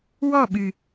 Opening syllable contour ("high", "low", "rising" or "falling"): falling